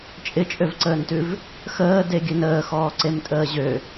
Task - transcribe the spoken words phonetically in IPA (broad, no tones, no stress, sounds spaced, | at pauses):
t͡ʃʼ ɪ t͡ʃʼ ø v ǀ əː n t ʉ v | x əː d e ɡʲ ʉ n əː x ɔː ǀ e m tʼ əː ʑ ø